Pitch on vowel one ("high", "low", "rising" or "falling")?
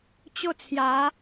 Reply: falling